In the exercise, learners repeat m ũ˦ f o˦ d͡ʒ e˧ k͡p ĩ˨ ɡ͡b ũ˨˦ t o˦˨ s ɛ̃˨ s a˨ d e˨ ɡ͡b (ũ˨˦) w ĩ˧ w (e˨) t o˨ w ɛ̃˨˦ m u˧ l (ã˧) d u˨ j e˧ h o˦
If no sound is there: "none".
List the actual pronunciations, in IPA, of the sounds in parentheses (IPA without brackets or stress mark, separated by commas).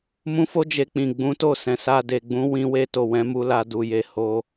ũ˨˦, e˧, a˧